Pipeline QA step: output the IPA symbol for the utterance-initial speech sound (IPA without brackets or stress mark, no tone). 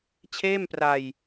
t͡ɕʰ